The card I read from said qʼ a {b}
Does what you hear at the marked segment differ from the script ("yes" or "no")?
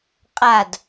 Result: yes